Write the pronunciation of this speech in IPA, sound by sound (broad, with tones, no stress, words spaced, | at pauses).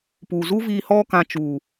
pu˨zu˦viː˧ hɔ˦kã˧ t͡ʃu˨